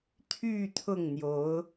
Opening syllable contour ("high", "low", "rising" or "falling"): falling